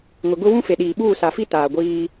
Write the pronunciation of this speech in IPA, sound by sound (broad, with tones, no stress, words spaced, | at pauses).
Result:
ŋʊ˨ɡʊ˦ wũ˦fe˨ ɗiː˨ɓuː˦˨ sa˨fi˦ taː˨ɡʷiː˦